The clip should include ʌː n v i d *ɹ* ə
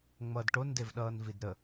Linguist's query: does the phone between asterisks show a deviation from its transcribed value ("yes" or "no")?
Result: yes